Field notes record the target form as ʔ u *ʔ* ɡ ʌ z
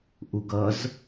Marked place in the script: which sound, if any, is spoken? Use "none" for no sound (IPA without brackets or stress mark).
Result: none